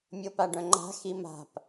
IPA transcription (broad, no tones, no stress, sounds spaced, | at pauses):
mʲ o p a ɖ œ̃ ŋ͡ǃ a̤ x i m a̤ p